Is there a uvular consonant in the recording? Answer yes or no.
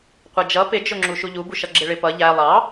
yes